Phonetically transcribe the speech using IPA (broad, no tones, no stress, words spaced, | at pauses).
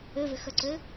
øvɪxœǀø